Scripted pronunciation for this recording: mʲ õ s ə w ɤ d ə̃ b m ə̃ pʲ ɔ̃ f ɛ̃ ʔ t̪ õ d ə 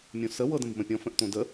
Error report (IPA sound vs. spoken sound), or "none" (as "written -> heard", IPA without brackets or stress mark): ɛ̃ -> ə̃